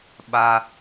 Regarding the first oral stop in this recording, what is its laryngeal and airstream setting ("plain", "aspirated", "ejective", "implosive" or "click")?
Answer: implosive